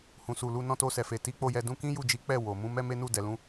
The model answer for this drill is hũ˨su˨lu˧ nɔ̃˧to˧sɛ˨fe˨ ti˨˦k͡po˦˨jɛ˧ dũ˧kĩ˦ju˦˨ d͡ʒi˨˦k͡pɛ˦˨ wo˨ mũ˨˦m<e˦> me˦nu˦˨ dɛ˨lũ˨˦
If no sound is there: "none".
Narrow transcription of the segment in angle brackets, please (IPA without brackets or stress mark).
ɛ˦